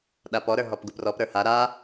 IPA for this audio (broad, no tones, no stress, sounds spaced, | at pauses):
ɗ a p ɔ ɾ ə˞ ɦ ɔ p ɡ u p r ɔ p ɾ ə˞ h a ɾ a